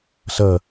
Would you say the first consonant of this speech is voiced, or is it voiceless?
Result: voiceless